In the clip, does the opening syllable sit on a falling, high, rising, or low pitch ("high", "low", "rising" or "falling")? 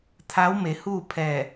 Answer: rising